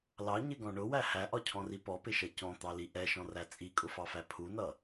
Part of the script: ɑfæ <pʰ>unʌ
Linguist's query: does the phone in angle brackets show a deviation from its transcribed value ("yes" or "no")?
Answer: no